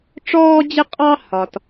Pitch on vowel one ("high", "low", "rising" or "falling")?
high